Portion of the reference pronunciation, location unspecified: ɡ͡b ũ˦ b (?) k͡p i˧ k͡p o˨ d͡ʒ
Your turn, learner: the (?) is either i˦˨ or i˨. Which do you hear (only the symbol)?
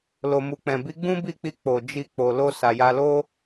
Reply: i˦˨